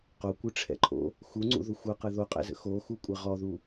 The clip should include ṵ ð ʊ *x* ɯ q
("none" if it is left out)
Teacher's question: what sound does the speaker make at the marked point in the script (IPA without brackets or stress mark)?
xʷ